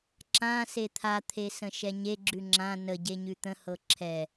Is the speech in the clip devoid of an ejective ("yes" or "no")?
yes